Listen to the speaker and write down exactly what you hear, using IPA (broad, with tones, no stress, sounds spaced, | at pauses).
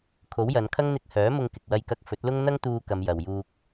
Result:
kʰ o˨˥ w j ɐ˨˧ n kʰ ɐ˥ ŋ n̪ ɪ˧ k̚ h œː˨˥ m ʊ˧ ŋ k ɪ˨ k̚ w ɐ˧ j k ɐ˧ k̚ f ɵ˨˥ t̚ l ʊ˥ ŋ n̪ ɐ˥ ŋ t̪ uː˧ k ɐ˨˧ m j ɐ˨ w j uː˧ k̚